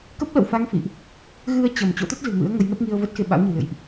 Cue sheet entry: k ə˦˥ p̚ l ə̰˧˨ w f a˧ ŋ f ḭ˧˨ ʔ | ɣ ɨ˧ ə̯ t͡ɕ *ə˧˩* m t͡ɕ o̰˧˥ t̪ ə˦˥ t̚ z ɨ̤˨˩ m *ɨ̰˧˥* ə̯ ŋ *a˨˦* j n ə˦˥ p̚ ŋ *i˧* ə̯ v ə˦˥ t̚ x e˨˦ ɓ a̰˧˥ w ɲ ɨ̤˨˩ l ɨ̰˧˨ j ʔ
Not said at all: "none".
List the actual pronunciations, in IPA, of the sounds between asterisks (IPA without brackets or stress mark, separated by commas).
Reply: ə˧˩, ɨ̰˧˥, ə˨˦, i˧